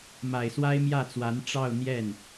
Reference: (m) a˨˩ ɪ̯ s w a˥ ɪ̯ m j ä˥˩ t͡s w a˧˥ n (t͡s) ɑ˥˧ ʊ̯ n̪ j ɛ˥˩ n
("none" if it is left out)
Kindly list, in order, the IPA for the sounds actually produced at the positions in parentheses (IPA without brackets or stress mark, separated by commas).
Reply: m, ʈ͡ʂ